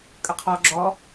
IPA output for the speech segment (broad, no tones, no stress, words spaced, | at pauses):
kʼəqʰɔ ɡ͡ǁɔ